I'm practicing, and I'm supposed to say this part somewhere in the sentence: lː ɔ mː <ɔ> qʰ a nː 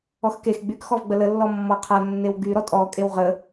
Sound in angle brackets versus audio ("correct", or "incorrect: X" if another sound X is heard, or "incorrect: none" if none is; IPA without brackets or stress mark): correct